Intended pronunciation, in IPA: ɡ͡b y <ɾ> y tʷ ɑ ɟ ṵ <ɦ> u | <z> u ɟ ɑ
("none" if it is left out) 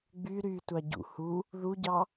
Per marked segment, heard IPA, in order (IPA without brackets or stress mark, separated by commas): ɾ, h, ð